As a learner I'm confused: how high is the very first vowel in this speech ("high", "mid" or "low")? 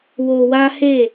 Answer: mid